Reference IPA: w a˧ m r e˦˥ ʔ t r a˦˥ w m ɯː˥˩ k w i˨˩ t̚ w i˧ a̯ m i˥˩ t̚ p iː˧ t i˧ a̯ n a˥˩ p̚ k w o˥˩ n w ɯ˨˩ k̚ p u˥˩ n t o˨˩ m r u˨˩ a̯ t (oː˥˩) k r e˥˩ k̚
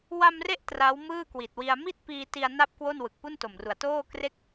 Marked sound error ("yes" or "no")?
no